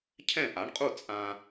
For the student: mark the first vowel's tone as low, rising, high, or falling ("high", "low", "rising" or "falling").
falling